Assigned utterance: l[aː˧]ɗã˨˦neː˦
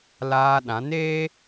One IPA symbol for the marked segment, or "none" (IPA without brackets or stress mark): aː˧